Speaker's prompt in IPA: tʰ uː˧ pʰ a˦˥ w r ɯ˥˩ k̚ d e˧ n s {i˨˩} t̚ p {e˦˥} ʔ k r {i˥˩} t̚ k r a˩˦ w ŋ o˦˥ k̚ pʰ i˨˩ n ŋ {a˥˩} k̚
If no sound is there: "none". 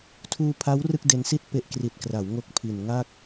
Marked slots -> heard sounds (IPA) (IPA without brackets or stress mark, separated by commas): i˥˩, e˦˥, i˨˩, a˥˩